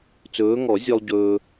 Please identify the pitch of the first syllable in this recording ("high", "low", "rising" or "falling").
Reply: rising